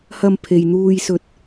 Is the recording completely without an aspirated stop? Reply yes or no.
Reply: no